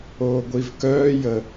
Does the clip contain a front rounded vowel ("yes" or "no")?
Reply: yes